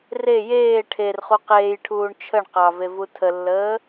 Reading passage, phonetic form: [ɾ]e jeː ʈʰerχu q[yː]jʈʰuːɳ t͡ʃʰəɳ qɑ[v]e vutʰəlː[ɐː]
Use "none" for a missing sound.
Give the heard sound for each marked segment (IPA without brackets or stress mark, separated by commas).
r, eː, v, əː